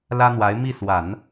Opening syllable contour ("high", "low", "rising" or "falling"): high